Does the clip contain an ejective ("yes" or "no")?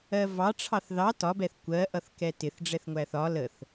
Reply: no